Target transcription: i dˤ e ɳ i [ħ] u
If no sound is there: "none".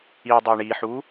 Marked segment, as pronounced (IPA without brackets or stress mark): ħ